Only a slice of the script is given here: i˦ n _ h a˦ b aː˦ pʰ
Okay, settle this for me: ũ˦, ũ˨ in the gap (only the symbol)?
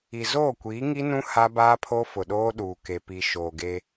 ũ˦